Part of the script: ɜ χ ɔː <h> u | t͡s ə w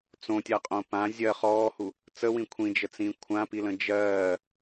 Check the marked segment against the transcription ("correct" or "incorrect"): correct